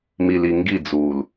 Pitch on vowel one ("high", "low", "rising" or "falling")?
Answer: low